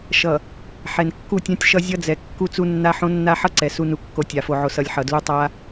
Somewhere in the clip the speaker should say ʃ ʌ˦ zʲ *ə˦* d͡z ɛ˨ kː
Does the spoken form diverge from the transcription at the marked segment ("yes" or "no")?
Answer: yes